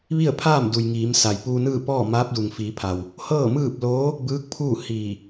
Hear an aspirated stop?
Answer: yes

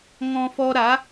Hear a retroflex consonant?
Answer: no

